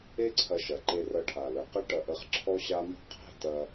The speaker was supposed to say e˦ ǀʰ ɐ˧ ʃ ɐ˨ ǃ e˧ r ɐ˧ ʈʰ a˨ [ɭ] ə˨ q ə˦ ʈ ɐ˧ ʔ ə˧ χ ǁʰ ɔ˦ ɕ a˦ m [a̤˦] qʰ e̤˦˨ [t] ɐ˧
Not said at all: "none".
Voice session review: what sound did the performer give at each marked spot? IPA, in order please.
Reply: l, ɑ̤˦, t

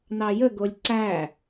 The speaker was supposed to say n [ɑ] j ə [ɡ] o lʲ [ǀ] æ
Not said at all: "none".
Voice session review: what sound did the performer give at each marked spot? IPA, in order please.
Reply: ɑ, ɡ, ǀ

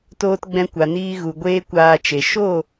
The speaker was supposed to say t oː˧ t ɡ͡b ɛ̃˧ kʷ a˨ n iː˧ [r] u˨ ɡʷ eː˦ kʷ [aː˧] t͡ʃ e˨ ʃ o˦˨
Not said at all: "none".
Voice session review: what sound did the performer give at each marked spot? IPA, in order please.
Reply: ɣ, aː˧

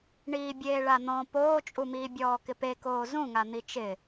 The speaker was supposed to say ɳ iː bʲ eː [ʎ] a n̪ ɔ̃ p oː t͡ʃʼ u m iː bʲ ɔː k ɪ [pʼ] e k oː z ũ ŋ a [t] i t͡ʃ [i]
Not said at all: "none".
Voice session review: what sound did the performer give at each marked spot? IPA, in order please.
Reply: ɭ, p, n̪, ɪ

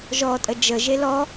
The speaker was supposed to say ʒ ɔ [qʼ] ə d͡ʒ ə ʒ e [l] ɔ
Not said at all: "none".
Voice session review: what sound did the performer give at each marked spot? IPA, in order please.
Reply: tʼ, l

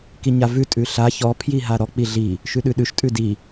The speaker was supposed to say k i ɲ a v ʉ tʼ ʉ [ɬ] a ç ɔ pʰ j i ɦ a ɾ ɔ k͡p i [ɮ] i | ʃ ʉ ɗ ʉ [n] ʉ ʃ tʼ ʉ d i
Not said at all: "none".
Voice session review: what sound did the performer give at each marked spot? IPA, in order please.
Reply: ɬ, ɮ, ɗ

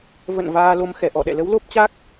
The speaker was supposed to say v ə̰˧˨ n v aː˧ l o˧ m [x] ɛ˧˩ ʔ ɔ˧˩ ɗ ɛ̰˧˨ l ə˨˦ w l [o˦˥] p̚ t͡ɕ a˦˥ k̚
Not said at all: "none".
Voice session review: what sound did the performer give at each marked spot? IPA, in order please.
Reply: x, o˦˥

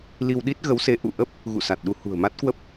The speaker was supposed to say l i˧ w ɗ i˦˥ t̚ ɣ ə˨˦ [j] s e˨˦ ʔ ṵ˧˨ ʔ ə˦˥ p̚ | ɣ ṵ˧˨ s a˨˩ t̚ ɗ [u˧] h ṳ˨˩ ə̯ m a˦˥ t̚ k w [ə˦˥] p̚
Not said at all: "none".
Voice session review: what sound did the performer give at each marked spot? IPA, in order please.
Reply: w, u˧, ə˦˥

